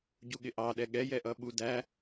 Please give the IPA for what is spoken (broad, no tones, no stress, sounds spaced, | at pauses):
ɟ u ɠ ɪ ʔ ɑ ɗ ɛ ɠ ɛ j ɛ ʔ ʌ ɓ u d æ